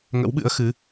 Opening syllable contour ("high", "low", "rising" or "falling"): rising